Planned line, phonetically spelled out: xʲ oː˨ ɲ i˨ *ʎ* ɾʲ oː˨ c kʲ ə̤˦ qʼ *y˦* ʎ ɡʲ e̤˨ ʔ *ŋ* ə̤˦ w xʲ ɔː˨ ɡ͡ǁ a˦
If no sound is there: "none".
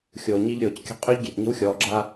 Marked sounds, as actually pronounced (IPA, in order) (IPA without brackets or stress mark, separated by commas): ʎ, y˦, ɲ